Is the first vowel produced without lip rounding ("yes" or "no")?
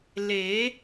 yes